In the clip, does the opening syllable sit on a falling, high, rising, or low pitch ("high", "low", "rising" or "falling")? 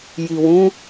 low